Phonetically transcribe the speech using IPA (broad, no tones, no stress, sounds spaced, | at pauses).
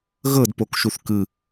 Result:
ɣ ɤ d p o k ʃ u θ k ɯ